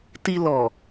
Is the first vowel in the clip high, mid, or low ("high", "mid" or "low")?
high